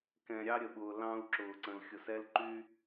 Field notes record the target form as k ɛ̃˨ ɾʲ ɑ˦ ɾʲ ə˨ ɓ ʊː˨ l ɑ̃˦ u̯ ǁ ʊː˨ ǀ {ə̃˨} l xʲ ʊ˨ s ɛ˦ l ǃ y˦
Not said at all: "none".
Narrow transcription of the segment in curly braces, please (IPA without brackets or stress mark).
ə̃˨